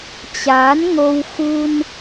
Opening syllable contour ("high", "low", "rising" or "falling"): rising